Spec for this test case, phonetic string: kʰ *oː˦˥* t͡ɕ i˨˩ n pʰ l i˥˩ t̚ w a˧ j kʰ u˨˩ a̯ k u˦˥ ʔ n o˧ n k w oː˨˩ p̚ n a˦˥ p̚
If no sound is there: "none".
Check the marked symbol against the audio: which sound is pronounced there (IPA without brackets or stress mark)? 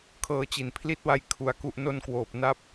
ɤː˦˥